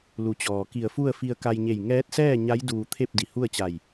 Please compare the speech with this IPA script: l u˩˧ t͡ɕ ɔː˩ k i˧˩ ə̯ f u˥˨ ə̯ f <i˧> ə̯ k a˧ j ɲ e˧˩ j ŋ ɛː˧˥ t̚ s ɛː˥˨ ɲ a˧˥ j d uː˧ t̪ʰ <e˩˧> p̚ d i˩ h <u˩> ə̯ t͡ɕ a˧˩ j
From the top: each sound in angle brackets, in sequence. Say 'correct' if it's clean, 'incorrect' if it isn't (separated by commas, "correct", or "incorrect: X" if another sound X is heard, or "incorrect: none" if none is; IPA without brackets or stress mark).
correct, incorrect: e˥˨, incorrect: u˥˨